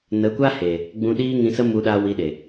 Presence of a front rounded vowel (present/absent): absent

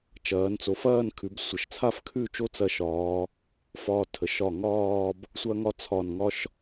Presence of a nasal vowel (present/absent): absent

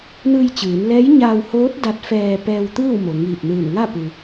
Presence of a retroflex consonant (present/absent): absent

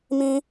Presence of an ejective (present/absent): absent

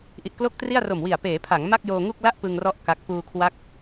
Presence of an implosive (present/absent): absent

